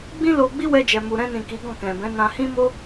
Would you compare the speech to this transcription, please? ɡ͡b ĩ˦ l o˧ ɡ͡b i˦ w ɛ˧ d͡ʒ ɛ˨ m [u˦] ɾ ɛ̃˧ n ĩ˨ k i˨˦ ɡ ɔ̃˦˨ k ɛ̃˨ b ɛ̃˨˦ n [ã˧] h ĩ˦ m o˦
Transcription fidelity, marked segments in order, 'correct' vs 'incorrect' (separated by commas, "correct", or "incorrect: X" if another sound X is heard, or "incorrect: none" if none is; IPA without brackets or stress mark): incorrect: u˨, correct